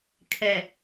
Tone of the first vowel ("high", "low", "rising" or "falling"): low